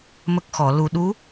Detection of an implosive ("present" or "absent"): present